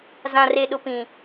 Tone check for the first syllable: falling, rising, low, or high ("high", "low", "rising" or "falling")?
low